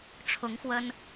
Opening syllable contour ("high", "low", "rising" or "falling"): rising